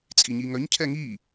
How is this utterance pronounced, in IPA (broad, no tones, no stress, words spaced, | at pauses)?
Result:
t͡sʼiɲiŋœɲcʰɛ ŋi